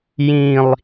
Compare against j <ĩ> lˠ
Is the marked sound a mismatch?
no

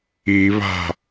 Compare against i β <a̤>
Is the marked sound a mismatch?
no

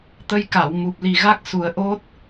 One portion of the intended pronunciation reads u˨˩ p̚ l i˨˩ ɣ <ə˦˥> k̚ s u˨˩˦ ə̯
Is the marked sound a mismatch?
yes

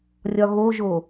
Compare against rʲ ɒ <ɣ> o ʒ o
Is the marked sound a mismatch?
no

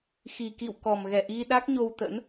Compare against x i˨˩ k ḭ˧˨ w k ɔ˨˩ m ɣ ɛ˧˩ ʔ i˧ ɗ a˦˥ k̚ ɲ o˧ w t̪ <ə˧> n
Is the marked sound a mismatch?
yes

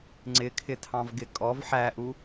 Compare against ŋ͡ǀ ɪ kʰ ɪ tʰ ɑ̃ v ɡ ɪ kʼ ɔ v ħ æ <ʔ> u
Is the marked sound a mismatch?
no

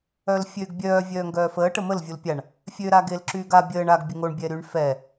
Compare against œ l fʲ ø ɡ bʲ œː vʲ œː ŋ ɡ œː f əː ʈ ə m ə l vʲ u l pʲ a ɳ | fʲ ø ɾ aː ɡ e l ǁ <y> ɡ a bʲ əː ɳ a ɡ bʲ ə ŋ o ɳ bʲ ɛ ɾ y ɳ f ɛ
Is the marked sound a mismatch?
yes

